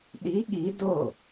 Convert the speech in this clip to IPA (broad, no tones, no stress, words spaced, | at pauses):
ɗi ɠi do